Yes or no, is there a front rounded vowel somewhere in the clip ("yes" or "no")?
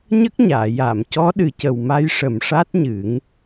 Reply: no